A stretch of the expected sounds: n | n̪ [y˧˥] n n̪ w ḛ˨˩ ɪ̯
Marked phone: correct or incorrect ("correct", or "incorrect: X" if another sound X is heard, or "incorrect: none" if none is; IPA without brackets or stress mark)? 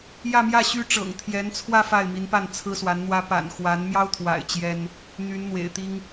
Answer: correct